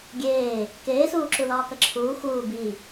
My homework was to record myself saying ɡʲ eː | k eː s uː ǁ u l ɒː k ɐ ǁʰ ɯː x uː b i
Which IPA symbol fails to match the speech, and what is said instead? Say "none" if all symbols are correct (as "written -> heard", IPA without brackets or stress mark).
ɯː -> uː